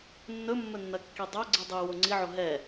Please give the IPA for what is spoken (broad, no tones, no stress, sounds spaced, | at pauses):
nː ɵ mː ɵ nː ɐ kː i dˤ o ɡ͡ǀ i dˤ i w o ŋ͡ǀ i ʕ o ɦ ɛ